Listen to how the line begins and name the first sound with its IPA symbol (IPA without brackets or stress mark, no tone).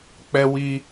k͡p